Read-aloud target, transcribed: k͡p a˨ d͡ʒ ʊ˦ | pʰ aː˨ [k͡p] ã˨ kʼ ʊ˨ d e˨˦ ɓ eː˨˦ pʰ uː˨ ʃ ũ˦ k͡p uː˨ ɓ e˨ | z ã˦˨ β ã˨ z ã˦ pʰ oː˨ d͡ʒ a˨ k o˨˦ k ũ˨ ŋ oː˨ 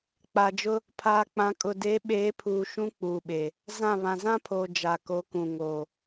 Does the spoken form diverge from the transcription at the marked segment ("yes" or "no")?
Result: no